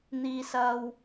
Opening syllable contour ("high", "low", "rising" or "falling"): high